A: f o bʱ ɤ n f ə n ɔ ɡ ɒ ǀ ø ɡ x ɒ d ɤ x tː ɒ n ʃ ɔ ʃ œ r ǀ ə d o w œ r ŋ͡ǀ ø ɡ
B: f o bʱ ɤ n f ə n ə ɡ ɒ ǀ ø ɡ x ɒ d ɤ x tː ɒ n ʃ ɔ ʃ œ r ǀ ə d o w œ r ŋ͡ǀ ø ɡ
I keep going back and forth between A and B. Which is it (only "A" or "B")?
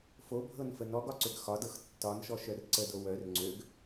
A